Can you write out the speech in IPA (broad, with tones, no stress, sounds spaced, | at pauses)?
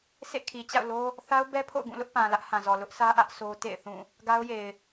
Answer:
sʰ ḛ˦˨ kʰ i˨ t͡ɕ a̰˦˨ ʊ̯ l o˦ | θ a˦ ʊ̯ b ɛ˦ pʰ o̰˦˨ ʊ̯ ɡ ũ˦˨ l ʊ˦ ʔ p ã˨ l ä˦ ʔ h ã˨ z ɔ˨ l ʊ˦ ʔ sʰ ä˦ ʔ ä˦ ʔ sʰ o˦ t ḛ˦˨ ɪ̯ θ ũ˦˨ | ɡ a˦ ʊ̯ j e˨ ɪ̯